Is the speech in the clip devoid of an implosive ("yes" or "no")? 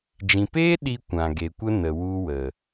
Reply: no